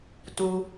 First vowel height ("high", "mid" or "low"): high